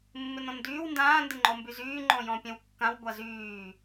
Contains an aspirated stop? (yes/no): no